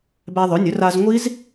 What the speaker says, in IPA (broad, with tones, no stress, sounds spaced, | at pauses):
b æ˧ ðˤ ɵ˩˥ nʲ ɵ˩˥ r a˧ z ŋʷ i˦˥ z